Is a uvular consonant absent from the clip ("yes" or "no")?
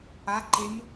yes